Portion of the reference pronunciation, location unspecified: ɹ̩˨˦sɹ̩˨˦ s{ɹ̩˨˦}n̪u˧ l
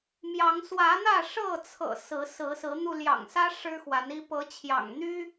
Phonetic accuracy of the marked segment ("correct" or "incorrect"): correct